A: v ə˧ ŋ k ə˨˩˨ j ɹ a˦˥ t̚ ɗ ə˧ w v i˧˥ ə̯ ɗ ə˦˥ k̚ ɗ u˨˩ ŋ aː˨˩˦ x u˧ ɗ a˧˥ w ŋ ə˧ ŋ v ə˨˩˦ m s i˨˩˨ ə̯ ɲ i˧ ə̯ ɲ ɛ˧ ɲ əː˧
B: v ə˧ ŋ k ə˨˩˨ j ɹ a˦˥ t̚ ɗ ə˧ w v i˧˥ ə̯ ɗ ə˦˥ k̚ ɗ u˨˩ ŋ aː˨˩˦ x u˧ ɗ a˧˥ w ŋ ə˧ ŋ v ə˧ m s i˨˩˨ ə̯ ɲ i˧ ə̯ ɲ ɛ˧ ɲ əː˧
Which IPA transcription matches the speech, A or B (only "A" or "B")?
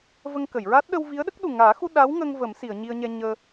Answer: A